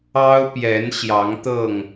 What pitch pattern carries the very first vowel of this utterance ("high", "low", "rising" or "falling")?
high